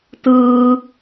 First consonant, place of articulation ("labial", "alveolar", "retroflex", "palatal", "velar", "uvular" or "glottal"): alveolar